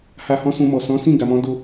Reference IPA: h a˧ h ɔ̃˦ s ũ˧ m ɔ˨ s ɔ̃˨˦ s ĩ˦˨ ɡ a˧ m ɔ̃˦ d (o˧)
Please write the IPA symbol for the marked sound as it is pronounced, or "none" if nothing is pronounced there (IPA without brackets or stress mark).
o˧